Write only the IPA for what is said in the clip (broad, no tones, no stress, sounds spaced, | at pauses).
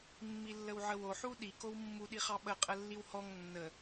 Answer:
mː i lː ə w ʕ ə w o ħ u ɗ i k o w mː u ɗ i χ ɑ ɓ ə qʼ ə lː i w h ɔ ŋ nː ə